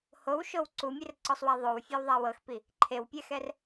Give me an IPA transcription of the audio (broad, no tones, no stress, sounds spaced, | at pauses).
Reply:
h o w ʃ o w ǀ u mʲ e r ǀ ɔ sˤ w a ðˤ o w fʲ ɛ w ðˤ a w ɤ x p i | ǃʰ e w pʲ ɛ x ɛ r